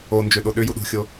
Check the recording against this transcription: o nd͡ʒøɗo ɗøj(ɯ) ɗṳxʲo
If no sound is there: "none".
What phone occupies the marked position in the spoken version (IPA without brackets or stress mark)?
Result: u